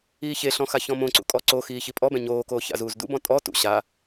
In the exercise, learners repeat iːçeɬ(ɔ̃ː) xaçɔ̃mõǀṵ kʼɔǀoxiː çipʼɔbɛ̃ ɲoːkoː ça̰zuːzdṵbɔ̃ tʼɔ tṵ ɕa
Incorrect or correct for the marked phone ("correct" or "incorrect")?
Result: incorrect